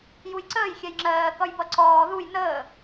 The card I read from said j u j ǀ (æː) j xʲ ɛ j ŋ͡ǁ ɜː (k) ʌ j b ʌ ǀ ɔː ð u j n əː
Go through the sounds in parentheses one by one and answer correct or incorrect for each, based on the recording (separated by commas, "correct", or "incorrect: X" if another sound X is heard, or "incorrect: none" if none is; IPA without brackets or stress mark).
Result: incorrect: əː, correct